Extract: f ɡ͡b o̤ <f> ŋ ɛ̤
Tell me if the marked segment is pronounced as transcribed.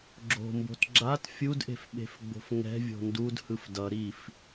yes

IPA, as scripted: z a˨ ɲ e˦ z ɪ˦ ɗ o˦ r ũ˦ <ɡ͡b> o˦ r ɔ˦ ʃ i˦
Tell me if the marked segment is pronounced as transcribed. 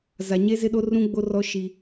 yes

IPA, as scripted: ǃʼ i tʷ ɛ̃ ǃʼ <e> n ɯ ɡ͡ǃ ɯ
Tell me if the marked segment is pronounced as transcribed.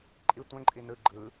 no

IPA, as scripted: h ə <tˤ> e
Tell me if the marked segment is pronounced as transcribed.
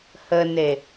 no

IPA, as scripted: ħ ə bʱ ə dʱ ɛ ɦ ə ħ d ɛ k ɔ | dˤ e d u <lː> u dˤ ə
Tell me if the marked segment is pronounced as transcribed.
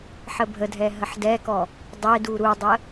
no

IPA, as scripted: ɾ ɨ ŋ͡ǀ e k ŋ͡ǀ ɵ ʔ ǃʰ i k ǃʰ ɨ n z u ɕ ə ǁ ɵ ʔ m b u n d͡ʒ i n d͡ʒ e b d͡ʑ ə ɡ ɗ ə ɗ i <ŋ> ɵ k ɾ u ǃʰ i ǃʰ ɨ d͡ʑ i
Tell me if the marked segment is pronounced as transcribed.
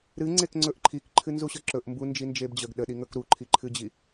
yes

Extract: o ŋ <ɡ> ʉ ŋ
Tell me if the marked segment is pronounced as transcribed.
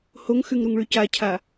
no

